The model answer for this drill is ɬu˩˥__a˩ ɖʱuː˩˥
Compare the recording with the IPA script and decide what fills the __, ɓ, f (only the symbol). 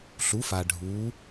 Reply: f